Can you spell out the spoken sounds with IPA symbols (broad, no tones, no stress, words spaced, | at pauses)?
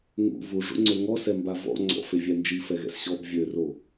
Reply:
ŋṵ vuʐṵŋ͡ǀø ŋɔsɛmba vɔ̰ ŋ͡ǀɔ̰fevʲɛ nd͡ʒifɛɣɛ̰s ɕɔb vʲøro